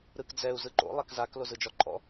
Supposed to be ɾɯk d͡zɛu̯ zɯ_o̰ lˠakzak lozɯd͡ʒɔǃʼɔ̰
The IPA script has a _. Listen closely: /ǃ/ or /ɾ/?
ǃ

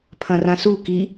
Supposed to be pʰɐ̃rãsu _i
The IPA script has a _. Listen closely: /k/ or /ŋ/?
k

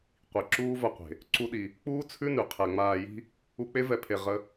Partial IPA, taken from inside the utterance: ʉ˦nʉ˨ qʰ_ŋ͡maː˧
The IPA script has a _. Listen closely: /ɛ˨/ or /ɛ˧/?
ɛ˨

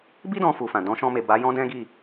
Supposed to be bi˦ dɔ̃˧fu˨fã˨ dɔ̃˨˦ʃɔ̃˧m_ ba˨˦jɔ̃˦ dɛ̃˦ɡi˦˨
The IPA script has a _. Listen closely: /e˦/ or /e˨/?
e˨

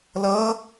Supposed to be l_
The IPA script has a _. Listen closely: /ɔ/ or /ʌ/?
ʌ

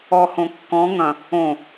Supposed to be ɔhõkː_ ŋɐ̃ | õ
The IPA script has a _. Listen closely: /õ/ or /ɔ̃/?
ɔ̃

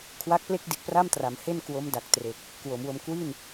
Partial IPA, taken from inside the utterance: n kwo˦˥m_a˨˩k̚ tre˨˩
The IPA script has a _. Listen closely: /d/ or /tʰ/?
d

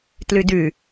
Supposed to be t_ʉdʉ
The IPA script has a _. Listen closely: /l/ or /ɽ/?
l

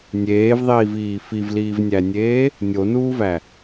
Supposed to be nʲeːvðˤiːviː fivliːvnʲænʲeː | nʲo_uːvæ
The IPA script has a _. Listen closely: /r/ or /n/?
n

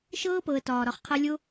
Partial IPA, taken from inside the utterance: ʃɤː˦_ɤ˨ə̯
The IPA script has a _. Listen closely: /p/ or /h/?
p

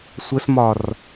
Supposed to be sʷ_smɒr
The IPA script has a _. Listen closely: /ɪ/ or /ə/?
ə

